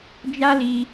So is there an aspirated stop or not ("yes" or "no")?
no